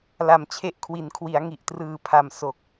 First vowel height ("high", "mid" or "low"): low